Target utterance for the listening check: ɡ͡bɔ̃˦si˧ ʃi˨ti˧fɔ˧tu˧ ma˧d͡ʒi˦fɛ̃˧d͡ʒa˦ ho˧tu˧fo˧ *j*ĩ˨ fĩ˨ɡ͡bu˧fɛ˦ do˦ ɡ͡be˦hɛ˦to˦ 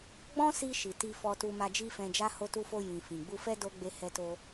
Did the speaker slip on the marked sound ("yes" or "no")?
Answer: no